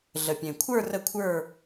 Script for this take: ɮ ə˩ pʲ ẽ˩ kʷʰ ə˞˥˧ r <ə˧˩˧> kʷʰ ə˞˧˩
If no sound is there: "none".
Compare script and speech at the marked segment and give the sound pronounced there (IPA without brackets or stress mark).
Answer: ə˧˩